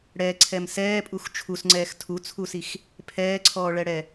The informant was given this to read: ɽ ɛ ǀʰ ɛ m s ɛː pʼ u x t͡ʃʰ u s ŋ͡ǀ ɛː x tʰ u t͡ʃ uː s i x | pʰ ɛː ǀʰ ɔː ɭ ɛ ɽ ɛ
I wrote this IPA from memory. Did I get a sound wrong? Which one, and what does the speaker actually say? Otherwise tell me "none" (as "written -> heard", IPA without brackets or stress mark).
t͡ʃ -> t͡sʰ